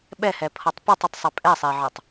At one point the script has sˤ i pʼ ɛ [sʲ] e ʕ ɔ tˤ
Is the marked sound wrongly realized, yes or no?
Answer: yes